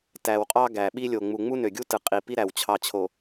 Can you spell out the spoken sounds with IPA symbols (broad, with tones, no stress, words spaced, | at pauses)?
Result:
tæ˨wqʼɑ˦ɡæ˨ɓi˦ lʲo˨ŋ͡mu˨ ŋ͡mu˦nø˨ɡʲu˦tɯ˨ qʼi˨pi˦ɾæ˨w t͡ɕʰɑ˨t͡ɕʰo˨